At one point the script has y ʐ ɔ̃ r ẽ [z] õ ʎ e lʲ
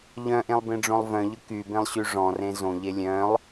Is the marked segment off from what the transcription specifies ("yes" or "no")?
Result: no